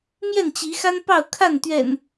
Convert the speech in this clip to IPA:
m j ɛ˥˨ n t͡ɕ i˨˦ x a˦ n p ɑ˥˨ ʊ̯ kʰ a˥˨ n t̪ ɥ ɛ̰˨˩ n

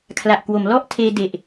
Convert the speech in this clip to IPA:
kʰ l a˨˩ ʔ k w o˩˦ m l ɔ˥˩ ʔ tʰ eː˧ d e˨˩ ʔ

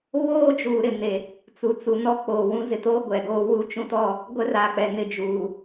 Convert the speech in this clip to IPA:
β oː˦ d͡ʒ uː˨ ɾ ɪ˨ n e˨ | t͡s u˨ t͡s u˨ n ɔ˦ k͡p oː˨ w ũ˦ z ɪ˨ t o˦ ɡʷ ɛ˨ ɡ oː˦ w u˦ t͡ʃ ũ˦ t ɔ˦ | ɡʷ ɛ˦ r aː˨ k͡p ɛ˨ n ɪ˨ d͡ʒ uː˨

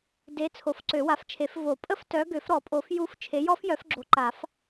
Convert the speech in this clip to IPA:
d e˨˦ t͡sʰ o˨˩˦ f ǀ ø˨˩˦ w a˨˦ f t͡ʃʰ e˨˩˦ f v o˨˩˦ pʼ ə˦˥ f t œ˨˦ ɡ ø˨˩˦ f ɾ ɔ˨˩˦ pʼ o˨˩˦ f j u˦˥ f t͡ʃʰ e˨˦ j ɔ˦˥ f j œ˨˦ f ɡ͡ǁ o˨˦ ǃ a˨˩˦ f

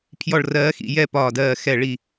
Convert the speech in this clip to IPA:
pʰ j ɔ˧˩ ɭ r ɜː˨˦ x ḭ˧˩ j ɛ˥˧ p ɒː˧˩ d ɜː˧˩ x ɛ˧˩ ɭ i˧˩

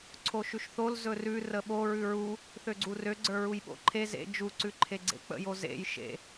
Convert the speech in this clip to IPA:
ǀʰ o ʃ ʉ ʃ θ o l z ɵ r ʉ r ə ɓ o ɹ ʉ ɹ u | θ ø ɡ͡ǀ u r ø ɡ͡ǀ ə˞ ɹ u j ɓ o̰ ǃʰ e z ḛ d͡ʒ u ǀ ʉ ǃʰ e ɡ͡ǀ ḛ k͡p ə̰ j o z ḛ j ʃ ḛ

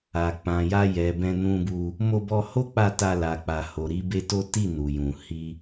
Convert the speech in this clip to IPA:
a˨ k͡p ã˨ j a˧ j ɛ˨ b ɛ̃˧ n ũ˧ b u˧ | m o˧ b ɔ˧ h o˦ k͡p a˧ t a˧ l a˨ k͡p a˨ h o˨ ɾ i˧ b e˧ t o˦ t i˦˨ n u˨ j ũ˨ h i˧

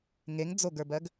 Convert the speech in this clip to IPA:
ŋ e ŋ d͡z o ɡ ə˞ b ɜ ɡ

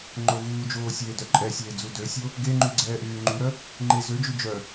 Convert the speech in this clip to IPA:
ŋ͡ǃ o v uː d͡ʒ oː sʲ eː d œ ǃʼ ɛ sʲ eː d͡z u d ø sʲ o | ɡ e ŋ͡ǃ y ɡ͡ǀ ɛː ʔ yː ŋ͡ǃ y ɾ œ | ŋ͡ǃ e z ø d͡ʒ y d͡ʒ œ

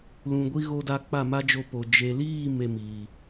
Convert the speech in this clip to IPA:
l ũ˨ ɡʷ i˧ ɣ o˧ d a˧ k͡p a˦˨ m a˦ d͡ʒ o˧ p o˨ d͡ʒ e˨ l iː˦˨ m e˦ m iː˨

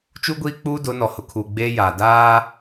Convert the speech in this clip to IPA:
t͡ʃ u˦ ɡʷ iː˦ k͡p uː˦ d ʊ˨˦ n ɔ˨ h ʊ˨ kʰ uː˨ ɡ͡b eː˦ j aː˨ d aː˦

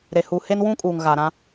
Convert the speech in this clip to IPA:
ɾ e˨ h u˨ h e˦ n w ũ˦ kʼ uː˨ ŋ ɣ a˨ ɾ ã˦

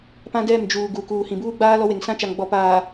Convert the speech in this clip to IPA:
p ã˦ d ɛ˦˨ m d͡ʒ uː˨ ɡ u˨ k uː˨ h ĩ˨ b uː˦ ɡ͡b aː˦ l ɔ˦ w e˨ ŋ s ã˦ t͡ʃ a˨ ŋ ɡ͡b ɔ˨ p aː˨

